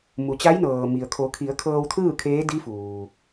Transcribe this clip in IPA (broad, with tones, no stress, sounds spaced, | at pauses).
m u˩ t͡ɕ a˧˥ j n ɤː˩ m i˩ ə̯ kʰ o˩˧ kʰ i˩˧ ə̯ kʰ ɤː˧ w t̪ʰ ɯː˥˨ kʰ eː˧˥ d i˧˥ f uː˩